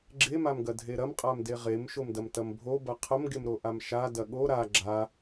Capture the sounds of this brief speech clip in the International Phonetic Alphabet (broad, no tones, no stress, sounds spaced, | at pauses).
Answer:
ɡ͡ǁ e m a m ɡ ɐ dʱ e ɾ ɐ m qʼ a m d e ʁ e m ʃ o m d ɐ m t ɐ m bʱ o b ɐ qʰ ɐ m ɡ e m ɾ o ʔ a m ʃ a d ɐ ɠ o ɾ a ɡ͡ǁ a